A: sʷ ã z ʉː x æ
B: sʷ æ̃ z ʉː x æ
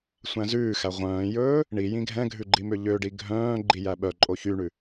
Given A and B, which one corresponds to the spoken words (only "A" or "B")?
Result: B